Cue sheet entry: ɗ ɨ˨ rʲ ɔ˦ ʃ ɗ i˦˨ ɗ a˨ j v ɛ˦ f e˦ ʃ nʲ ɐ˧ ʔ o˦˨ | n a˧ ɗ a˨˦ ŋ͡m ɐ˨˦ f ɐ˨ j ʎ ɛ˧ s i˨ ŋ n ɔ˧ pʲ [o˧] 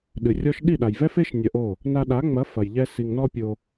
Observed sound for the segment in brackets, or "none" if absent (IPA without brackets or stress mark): o˧